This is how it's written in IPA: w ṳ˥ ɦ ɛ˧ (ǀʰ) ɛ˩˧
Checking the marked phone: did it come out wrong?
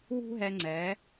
yes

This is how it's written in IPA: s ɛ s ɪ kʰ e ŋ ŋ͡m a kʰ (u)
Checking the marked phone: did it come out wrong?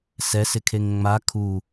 no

